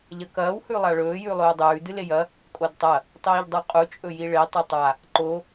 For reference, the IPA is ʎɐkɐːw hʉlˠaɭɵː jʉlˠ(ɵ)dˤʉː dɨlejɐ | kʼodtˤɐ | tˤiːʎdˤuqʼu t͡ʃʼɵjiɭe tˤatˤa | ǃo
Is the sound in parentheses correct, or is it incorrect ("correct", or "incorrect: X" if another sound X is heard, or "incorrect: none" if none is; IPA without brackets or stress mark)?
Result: incorrect: ɵː